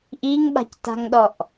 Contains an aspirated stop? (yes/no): no